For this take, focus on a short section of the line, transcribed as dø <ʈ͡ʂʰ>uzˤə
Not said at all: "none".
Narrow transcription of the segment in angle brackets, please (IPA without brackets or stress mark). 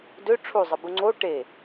ʈ͡ʂʰ